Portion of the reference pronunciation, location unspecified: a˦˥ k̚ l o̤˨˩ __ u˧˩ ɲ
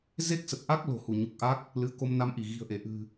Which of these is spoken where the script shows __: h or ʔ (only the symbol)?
h